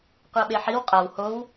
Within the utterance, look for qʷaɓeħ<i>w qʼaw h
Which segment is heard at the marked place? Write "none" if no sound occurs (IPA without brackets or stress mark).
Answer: i